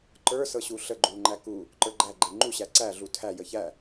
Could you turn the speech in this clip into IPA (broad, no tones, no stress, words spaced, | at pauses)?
ǃə˞sɤ ɕuɬəɡ͡ǃu ŋ͡ǃæku | ǃə˞ɡ͡ǃæ ɡ͡ǃeŋ͡ǃu ɕæǀæɮu tʰæ jəçæ